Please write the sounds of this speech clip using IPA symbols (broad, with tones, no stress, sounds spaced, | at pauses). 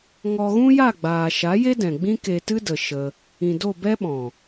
ŋ ɔ˧ ɣ ũ˦ j a˦˨ ɡ͡b aː˨ ʃ a˨˦ j e˦ d ɛ̃˨ ɡ͡b ĩ˦ k e˧ t ɨ˦ d ə˨ ʃ ə˧ | ĩ˨ d o˦˨ b ɛ˦ ɓ ɔ̃˨